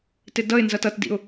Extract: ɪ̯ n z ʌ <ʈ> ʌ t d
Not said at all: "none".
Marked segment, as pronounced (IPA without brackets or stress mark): t